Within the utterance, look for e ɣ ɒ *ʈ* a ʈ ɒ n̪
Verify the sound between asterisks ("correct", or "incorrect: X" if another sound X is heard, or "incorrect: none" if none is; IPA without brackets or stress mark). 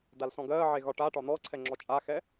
correct